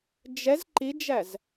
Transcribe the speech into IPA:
d͡ʒ ɛ z ǃ i d͡ʒ æ z

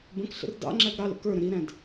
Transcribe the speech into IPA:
b ə̃ k ɬ ə̰ r d ɑ̰ ŋ͡ǁ æ ɡ ɾ ɑ l ə̰ k ə˞ ɾ ə̃ ɾ i ɾ æ̃ d

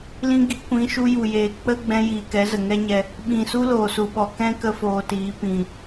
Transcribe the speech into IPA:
l ĩ˧ ɡ i˨˦ kʷ ĩ˨˦ ʃ u˧ j u˨ j eː˨ k͡p ə˦ ɡ͡b ɛ̃˧ j iː˨ k ɛ˨˦ z ə˨ ŋ ɛ˦ ɲ ɛ˧ | ɓ ĩ˨ s u˦ l oː˨ s u˨ ɓ ɔ˨ k ɛ̃˦ k ə˦ f oː˧ t iː˨˦ p ĩ˨

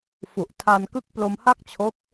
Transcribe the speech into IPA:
f u˨˩ ʔ tʰ a˧ n k ɯ˦˥ k̚ p l o˧ m h a˥˩ k̚ t͡ɕʰ o˦˥ k̚

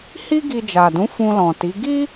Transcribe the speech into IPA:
h i˦ ɡ i˧ d͡ʒ a˨ d ũ˨˦ f ũ˧ l ɔ̃˨ t i˨˦ ɡ i˦

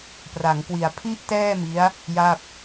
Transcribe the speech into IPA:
p r a˩˦ ŋ k w i˨˩ a̯ pʰ i˥˩ ʔ t ɛː˥˩ m i˦˥ a̯ | j a˥˩ p̚

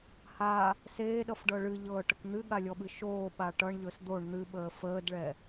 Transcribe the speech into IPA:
h a | s eː ɗ ʌ f ɖ ɤ ɭ ɨ ʎ ɤː ʈ ə k n̪ ɨ ɠ a lʲ ɔ ɓ ɨ ʃ oː ɓ a ʈ ʌ ɳ ʎ ɵ s d̪ o ɳ n̪ ɨ ɓ əː f əː d ɭ ɛ

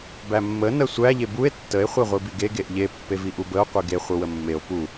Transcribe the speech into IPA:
b æ mː ə n ə sʷ æ ʎ e b u e̯ tː ə e̯ χʷ e ʁʷ i b i ɡ e ɡ e ʔ ʎ e pː e v i ʔ u b ə o̯ qʷ i ɡ e χʷ ə w ə mː e o̯ p u

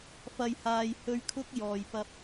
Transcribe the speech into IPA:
f ɐ˨ j h aː˨ j h ɵ˨˧ ɥ kʰ ʊ˧ k̚ j ɔː˨ j p ɐ˧ p̚

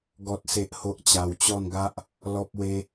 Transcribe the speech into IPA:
ɡ ɔ˦ t̚ s e˦ ʔ h o˦ ʔ t͡ɕ a˧ w t͡ɕ ɔ˥˧ n ɡ a˦ ʔ | l ɔ˦ p̚ w e˦

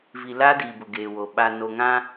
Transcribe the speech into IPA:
v i˨ l aː˦ d iː˨ b ʊ˨ ɡ eː˨ w o˨ ɓ a˨ n o˨ ŋ ã˦

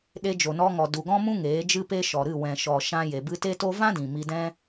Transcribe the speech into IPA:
ɗ e˧ d͡ʒ o˨ n ɔ˧ ŋ ɔ˨ d u˨ ɡ ɔ̃˦ m ũ˦ ŋ eː˨˦ d͡ʒ ɨ˦ p e˦ ʃ ɔ˨ ɾ ɨ˦˨ w ɛ̃˨ ʃ ɔ˨ ʃ ã˧ j e˨ b ɨ˦ t e˦ t o˦ v ã˦ d ĩ˨ m i˧ d ɛ̃˦

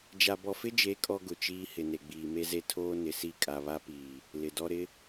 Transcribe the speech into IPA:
d͡ʒ a˨ b ɔ˨ f ɪ˦ d͡ʒ e˨˦ kʼ ɔ˦ ɡ ʊ˨ t͡ʃ iː˦ h ɪ˨ n e˨ ɡ͡b iː˨ m e˦ z e˦ tʰ oː˦ n ɪ˨ s i˦˨ kʼ a˨ β a˦ p iː˨ | l ɪ˨ d ɔ˦ ɾ ɪ˦

